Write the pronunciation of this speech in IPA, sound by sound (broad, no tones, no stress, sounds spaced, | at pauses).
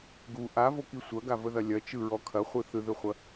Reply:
ɡ u ʔ a v o k i sʷ ɐ ɡ a v ə ð ɐ lʲ ɐ t͡ʃ ɯ ɹ ɔ kʰ ɐ χʷ ɯ θ ɯ ð ɯ χʷ ɐ